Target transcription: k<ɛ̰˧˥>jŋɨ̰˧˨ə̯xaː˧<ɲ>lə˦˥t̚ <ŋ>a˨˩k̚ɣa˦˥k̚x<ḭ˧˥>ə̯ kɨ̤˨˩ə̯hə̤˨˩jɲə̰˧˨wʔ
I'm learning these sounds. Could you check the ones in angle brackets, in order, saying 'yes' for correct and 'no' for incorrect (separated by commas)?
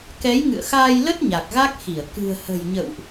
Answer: no, no, no, no